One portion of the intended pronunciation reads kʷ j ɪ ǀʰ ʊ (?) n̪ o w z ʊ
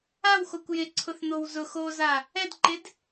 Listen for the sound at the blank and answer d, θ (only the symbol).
θ